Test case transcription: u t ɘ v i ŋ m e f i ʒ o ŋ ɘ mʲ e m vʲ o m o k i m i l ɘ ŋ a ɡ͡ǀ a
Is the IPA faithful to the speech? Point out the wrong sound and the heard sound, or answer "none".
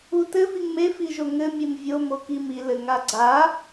none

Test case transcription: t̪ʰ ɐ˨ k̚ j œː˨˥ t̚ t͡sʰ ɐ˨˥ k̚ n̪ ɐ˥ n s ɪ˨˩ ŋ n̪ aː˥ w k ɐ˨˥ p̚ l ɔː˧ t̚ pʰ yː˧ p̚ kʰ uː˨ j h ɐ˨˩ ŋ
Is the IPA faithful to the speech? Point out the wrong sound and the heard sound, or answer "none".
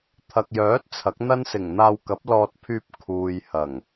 aː˥ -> aː˧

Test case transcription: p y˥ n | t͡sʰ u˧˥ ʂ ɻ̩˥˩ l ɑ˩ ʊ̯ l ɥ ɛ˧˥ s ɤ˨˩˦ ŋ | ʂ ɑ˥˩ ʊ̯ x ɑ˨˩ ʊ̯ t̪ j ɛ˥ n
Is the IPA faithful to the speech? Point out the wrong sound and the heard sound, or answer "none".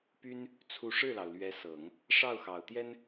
none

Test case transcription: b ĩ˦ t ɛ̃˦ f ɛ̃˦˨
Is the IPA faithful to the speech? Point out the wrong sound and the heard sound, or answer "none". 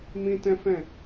b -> m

